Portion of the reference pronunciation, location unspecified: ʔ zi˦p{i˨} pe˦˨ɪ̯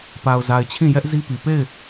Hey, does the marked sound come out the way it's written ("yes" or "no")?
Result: yes